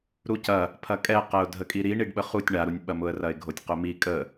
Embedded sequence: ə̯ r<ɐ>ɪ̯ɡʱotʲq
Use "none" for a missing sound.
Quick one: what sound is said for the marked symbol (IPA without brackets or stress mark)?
ɐ